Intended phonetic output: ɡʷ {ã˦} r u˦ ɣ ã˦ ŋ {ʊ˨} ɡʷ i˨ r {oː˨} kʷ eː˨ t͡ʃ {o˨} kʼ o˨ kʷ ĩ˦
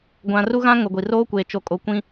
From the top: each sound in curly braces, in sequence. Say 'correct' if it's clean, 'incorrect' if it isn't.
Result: incorrect, correct, incorrect, correct

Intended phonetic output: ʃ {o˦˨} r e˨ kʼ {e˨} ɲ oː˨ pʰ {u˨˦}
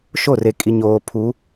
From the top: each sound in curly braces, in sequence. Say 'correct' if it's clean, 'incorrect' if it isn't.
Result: correct, incorrect, correct

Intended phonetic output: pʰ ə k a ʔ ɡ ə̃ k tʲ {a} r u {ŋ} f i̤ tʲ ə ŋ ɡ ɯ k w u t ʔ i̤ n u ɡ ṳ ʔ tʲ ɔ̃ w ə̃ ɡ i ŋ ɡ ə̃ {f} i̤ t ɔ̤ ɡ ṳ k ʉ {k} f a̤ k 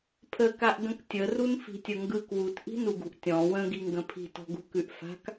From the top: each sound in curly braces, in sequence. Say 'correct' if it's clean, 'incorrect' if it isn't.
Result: incorrect, incorrect, incorrect, incorrect

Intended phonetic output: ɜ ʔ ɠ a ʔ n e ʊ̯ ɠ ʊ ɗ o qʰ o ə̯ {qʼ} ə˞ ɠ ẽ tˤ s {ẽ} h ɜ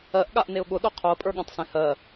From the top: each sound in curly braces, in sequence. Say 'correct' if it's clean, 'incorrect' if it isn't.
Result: incorrect, correct

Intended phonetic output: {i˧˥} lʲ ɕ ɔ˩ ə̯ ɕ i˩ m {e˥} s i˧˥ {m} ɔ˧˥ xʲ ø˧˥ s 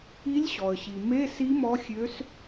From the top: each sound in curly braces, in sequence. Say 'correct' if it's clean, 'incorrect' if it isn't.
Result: correct, incorrect, correct

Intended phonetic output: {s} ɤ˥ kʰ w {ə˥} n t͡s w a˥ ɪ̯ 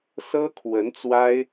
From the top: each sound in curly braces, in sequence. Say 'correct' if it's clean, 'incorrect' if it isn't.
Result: correct, incorrect

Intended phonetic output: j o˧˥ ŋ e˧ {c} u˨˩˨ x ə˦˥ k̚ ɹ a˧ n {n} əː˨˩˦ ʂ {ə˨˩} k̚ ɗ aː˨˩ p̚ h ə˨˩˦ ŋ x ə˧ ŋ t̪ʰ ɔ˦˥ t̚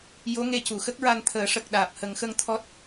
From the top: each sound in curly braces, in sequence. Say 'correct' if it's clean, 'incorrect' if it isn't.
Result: correct, incorrect, correct

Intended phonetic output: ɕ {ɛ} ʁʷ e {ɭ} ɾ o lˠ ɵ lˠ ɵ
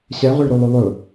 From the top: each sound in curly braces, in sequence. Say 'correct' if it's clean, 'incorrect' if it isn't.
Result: correct, correct

